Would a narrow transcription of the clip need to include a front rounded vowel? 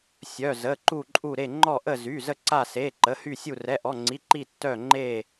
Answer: yes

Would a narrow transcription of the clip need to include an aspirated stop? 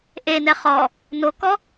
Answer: no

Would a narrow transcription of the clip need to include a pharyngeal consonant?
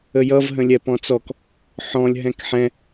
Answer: yes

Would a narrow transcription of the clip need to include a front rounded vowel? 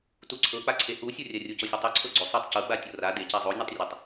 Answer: no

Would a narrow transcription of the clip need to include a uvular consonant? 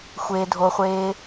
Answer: yes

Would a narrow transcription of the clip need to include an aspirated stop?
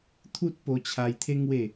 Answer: yes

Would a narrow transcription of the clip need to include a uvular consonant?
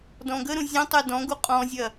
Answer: yes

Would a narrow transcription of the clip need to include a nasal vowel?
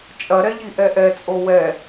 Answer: no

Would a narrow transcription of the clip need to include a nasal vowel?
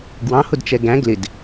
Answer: yes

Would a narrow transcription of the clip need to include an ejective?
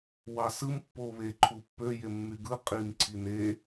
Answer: yes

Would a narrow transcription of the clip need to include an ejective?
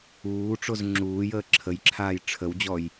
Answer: no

